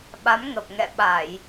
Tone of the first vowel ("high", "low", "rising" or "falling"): rising